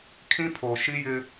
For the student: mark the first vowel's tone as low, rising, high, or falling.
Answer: high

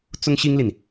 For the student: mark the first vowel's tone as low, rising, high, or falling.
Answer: high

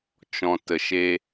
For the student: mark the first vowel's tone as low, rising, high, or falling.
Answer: low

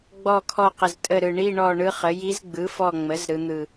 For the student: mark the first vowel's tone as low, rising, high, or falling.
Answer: falling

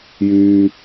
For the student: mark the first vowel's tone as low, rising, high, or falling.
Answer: high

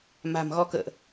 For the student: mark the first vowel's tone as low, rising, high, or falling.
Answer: low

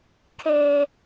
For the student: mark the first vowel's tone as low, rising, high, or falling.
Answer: high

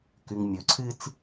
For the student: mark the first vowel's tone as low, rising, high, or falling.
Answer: low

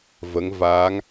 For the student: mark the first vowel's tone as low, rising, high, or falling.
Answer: rising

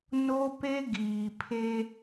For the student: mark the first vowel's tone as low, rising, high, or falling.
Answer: high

